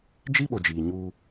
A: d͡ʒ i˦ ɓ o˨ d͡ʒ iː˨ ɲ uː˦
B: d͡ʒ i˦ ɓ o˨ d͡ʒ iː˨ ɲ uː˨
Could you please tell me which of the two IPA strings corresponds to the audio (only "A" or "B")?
A